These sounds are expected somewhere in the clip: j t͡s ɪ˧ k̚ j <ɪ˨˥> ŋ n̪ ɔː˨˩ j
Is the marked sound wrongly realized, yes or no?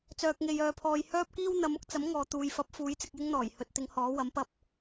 yes